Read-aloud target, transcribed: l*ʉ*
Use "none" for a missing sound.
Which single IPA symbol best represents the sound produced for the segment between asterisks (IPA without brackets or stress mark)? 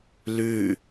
ʉ